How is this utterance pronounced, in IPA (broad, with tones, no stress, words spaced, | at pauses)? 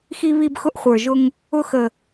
xi˦βi˦b xʊ˦ʔ χʷə˞˨ʒʊ˦ŋ | ʊ˦xə˨